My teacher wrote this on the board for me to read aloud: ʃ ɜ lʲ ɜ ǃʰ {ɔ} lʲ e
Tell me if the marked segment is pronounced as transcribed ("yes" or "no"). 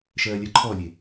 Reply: yes